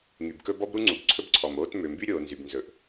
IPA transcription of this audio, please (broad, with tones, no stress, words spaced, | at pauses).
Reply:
ŋy˩bkɵ˥ bɔ˥bɾu˥ŋ͡ǀu˩b ǀʰɵ˥bǀʰɔ˩moː˥t mø˩mby˥ɾʲoː˩ nzy˩bnzɵ˩ʔ